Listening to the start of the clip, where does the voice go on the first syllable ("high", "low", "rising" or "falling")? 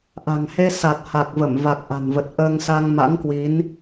low